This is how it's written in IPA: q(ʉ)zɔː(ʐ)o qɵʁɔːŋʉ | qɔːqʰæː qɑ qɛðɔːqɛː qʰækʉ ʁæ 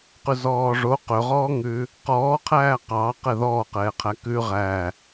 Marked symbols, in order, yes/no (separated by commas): yes, yes